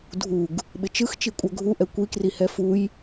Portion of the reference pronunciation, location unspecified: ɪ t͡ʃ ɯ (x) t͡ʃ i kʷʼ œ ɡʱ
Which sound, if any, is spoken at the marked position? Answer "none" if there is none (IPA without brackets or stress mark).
x